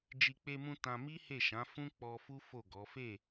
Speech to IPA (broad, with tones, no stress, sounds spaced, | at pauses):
d͡ʒ i˧ k͡p e˧ m ũ˧ t ã˧ m i˦ h e˦˨ ʃ ã˨˦ f ũ˦ k͡p ɔ˧ f u˦ f o˦˨ ɡ ɔ˨˦ f e˦˨